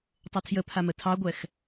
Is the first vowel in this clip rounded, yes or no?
no